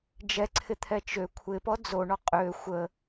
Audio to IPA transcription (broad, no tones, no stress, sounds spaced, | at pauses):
d͡ʒ ɛ ǀʰ ɪ t̪ʰ ɛ t͡ʃ ø kʷʰ ɪ p ɔ d͡z o ɳ ɔ qʼ ø xʷ ə